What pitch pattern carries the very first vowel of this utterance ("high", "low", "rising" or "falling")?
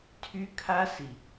high